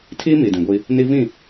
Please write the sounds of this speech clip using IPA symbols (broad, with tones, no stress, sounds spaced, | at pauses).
tʰ iː˦ m i˨ d ĩ˨ ɡʷ i˦ | n i˦ v ĩ˦˨